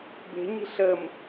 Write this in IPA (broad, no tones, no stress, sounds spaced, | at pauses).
b e̤ ɲ i̤ ɬ ə m